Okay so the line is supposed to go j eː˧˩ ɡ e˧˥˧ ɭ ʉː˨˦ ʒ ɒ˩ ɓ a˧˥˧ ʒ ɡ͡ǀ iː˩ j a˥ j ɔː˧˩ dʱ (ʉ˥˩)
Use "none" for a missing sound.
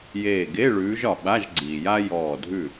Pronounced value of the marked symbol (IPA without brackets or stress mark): ʉ˥˩